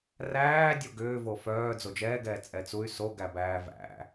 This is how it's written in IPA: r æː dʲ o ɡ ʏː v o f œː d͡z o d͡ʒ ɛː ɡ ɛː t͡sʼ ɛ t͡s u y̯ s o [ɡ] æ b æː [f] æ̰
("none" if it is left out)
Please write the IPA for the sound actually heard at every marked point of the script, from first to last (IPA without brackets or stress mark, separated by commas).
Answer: ɡ, v